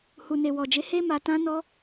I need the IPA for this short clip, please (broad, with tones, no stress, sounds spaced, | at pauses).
h u˨ n e˨ w ɔ˨ d͡ʒ e˨˦ h e˦ m a˧ t ã˦ n ɔ˦